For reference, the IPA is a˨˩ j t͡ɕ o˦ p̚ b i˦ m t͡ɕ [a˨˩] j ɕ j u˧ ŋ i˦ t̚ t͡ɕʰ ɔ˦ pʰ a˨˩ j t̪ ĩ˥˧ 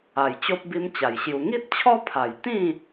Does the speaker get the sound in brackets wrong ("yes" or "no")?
no